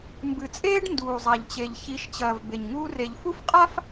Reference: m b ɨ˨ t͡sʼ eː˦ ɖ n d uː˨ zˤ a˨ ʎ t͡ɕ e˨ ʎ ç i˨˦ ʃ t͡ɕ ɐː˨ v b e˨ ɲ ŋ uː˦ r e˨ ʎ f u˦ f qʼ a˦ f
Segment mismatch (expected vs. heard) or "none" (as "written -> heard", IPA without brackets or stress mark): none